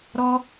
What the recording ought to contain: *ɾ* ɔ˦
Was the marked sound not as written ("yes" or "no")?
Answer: no